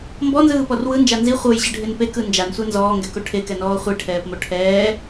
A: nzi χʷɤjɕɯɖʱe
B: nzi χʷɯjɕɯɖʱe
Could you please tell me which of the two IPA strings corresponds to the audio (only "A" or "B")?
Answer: A